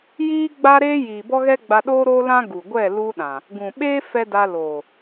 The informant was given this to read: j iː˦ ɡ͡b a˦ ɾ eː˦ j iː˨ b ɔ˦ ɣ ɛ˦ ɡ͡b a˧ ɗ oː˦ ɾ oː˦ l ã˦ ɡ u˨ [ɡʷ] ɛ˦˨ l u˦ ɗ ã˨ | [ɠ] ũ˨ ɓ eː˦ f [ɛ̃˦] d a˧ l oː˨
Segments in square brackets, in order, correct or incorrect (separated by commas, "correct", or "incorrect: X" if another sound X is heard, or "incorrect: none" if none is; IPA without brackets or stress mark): correct, incorrect: ɡ, incorrect: ɛ˦